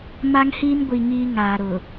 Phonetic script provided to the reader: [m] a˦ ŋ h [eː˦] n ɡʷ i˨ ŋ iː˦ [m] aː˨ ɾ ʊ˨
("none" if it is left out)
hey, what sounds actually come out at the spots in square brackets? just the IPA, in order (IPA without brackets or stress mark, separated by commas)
m, iː˦, ŋ